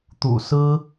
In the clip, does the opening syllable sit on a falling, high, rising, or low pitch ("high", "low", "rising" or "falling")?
low